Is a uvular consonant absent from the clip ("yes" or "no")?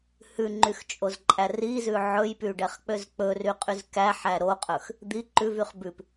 no